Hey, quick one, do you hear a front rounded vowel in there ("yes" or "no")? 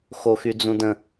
yes